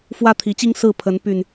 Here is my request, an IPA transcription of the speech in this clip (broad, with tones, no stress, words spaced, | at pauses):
fwä˦t̪ʰi˨˦t͡ɕi˦ŋ sɹ̩˥˨pʰə˨˦n py˨˩n